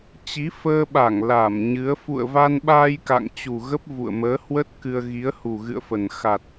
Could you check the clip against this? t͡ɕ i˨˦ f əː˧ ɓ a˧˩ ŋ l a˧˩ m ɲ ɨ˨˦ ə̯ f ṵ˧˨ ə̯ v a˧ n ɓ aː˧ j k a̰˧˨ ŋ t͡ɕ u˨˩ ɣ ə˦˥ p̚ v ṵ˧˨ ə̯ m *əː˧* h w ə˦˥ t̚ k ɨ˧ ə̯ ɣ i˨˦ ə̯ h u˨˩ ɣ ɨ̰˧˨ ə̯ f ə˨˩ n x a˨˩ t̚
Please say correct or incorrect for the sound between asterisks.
incorrect: əː˨˦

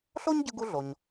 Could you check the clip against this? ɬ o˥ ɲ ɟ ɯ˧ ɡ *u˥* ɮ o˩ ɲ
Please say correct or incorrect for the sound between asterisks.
incorrect: u˧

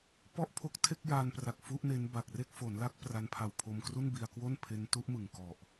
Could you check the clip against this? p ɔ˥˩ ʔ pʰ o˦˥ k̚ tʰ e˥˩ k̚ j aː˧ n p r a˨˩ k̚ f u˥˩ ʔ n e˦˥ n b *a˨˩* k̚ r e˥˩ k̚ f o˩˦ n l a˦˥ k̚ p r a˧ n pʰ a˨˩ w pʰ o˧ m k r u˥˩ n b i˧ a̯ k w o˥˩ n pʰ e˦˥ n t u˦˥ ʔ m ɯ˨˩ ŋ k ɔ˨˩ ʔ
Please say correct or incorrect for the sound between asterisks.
correct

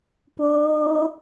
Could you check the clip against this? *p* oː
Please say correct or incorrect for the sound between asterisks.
correct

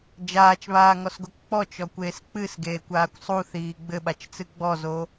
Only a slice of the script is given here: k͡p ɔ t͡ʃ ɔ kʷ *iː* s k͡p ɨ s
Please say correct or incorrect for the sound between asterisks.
incorrect: eː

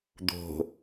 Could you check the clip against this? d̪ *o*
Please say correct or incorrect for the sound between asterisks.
incorrect: o̤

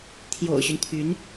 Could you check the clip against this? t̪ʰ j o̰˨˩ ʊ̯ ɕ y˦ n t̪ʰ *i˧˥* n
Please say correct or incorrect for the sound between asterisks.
incorrect: y˧˥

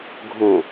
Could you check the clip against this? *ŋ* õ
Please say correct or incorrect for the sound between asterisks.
incorrect: ɡʱ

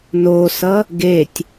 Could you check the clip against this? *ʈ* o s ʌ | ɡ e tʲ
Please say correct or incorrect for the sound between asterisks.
incorrect: n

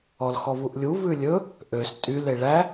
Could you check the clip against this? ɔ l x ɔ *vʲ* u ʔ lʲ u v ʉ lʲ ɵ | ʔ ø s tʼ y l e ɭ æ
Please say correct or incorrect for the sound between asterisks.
incorrect: v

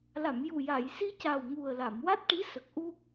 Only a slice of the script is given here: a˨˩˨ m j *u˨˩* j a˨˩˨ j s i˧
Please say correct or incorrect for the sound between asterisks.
correct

